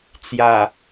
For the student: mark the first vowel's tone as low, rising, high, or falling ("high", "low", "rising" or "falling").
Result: low